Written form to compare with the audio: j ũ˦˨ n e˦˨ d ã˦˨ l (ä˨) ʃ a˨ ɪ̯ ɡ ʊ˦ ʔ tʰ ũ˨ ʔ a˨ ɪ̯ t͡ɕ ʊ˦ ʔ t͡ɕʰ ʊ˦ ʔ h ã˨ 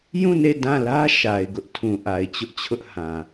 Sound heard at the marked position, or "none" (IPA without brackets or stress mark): ä˦